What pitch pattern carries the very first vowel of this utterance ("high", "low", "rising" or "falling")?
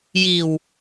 low